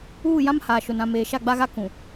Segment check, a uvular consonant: absent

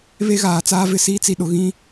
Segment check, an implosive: present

